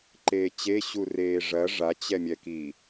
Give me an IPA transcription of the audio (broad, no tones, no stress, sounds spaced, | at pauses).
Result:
ǃ eː t͡ɕ e ɕ u r eː ʐ ɐ ʐ a t͡ɕ ɛ mʲ ɛ k i